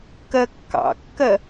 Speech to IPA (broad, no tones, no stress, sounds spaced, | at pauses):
k ɜ kː ɑ̰ kː ɜ